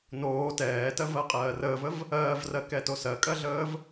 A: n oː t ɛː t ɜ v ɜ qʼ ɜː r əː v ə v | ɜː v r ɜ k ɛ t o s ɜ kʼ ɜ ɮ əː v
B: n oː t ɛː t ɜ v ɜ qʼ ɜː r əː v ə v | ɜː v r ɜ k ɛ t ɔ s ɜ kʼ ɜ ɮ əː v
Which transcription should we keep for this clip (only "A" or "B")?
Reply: A